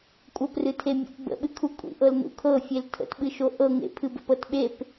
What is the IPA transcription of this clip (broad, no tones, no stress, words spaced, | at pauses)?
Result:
kʷʼɤprɨtʰemʲṵt bə̰ɓɨkʰu kʷʼḭʔɤlnṵ kʰɤfʲel tʰə̰tɓɨʃo ʔɤ ŋḛpʰɨbə̰pɤt ɓep